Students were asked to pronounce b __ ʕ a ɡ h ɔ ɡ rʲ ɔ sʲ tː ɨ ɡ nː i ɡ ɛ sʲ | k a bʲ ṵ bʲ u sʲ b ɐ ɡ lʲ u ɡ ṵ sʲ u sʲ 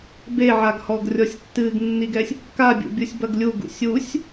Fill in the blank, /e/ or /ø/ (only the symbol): e